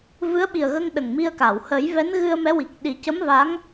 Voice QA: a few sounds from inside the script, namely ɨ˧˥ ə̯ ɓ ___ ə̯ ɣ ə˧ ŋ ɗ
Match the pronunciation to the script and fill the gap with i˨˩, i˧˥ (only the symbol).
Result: i˨˩